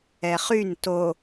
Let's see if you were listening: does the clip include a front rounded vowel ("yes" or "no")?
yes